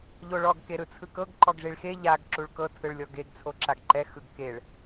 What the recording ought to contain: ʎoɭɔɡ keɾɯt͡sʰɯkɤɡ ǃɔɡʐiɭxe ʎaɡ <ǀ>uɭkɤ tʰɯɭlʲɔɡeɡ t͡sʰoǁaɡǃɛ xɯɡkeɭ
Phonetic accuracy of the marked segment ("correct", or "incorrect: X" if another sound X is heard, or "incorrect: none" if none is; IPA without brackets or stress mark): incorrect: ǁ